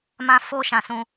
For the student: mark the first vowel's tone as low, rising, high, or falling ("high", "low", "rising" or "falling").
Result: high